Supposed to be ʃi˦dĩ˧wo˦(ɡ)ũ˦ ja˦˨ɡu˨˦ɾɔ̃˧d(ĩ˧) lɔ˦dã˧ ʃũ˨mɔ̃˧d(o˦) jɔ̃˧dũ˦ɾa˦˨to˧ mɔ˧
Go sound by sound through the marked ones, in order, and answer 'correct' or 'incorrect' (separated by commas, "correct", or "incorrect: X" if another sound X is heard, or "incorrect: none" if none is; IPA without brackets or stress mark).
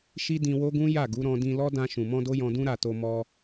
correct, correct, correct